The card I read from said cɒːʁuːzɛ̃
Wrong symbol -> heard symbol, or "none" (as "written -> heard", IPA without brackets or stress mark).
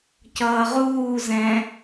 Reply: ɒː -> ʌː